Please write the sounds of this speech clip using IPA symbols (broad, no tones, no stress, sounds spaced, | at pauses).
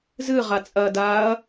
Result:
z ɨ ʁ a t͡sʼ ɐː d aː ɐ̯